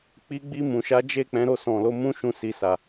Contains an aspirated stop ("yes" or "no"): no